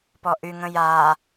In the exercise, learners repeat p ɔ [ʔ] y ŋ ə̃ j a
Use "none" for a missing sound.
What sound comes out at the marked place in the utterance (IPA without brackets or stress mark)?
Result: ʔ